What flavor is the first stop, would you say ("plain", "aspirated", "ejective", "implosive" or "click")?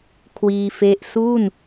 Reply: aspirated